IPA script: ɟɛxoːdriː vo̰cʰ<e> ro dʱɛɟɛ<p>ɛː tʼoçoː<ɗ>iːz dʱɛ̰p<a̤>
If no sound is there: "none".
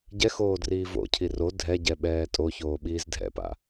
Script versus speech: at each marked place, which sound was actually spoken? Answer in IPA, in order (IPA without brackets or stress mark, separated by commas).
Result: i, ɓ, ɓ, a̰